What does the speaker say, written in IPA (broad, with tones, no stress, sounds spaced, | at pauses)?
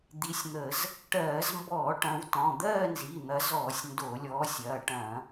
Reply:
d̪ i˨˦ sʲ n̪ ə˧˩˧ z | ʈ ɜː˧˩˧ z m b ɔː˧˩˧ ʈ ɐ̃˨˦ w t ɔ̃˩˧˩ d̪ ɜː˥˧ n z i˩˧˩ n̪ ɐ˨˦ z ɔː˧˩˧ sʲ n d o˧˩˧ lʲ ɔː˨˦ sʲ ɐː˩˧˩ ʈ ɐ̃˧˩˧